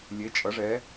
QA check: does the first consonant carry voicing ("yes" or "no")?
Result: yes